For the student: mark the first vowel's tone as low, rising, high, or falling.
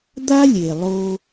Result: high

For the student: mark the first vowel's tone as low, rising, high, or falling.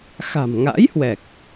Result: low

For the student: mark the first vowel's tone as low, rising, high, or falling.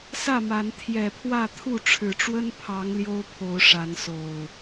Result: falling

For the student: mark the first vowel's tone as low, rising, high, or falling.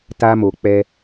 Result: high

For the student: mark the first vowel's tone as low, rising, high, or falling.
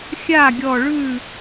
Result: falling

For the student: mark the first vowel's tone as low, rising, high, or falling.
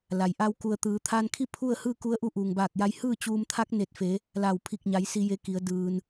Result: low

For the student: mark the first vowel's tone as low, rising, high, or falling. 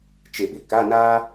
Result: low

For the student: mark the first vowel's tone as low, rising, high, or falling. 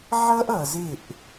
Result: high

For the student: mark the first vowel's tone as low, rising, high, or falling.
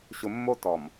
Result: low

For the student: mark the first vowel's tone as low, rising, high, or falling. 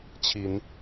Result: rising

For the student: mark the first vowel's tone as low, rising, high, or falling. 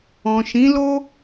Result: low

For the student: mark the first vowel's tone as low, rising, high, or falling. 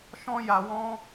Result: high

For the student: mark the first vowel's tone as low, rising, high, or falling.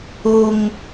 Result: high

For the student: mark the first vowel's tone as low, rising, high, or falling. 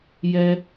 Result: low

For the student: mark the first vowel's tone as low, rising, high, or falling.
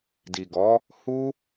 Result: low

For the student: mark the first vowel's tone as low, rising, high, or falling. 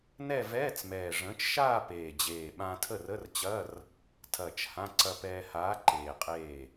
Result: falling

